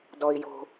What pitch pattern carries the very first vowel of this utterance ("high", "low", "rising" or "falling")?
high